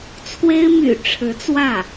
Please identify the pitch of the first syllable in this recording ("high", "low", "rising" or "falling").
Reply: high